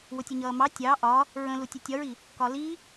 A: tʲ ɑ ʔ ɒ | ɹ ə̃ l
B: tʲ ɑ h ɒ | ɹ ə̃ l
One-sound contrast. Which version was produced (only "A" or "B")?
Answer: A